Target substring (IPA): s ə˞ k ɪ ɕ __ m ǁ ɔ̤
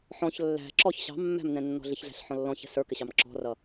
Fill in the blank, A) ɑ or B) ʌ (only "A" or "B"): A